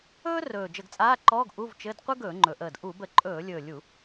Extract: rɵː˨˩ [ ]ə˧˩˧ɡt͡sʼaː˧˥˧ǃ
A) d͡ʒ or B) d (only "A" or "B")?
A